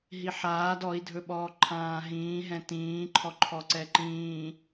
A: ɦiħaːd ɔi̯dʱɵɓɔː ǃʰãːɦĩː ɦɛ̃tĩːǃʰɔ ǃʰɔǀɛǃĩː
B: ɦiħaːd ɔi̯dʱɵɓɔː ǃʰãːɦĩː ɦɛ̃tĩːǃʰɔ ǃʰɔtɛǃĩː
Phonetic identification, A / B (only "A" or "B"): A